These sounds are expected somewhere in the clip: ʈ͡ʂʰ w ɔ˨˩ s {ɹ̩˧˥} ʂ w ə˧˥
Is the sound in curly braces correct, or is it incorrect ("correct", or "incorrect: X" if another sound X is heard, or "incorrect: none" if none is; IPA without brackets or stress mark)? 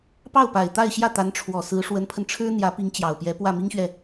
correct